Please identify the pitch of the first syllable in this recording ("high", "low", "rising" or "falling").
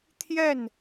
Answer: falling